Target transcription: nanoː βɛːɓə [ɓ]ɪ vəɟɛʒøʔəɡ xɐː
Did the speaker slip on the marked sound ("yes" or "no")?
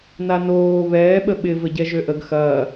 no